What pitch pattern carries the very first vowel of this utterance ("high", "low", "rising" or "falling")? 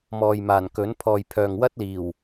low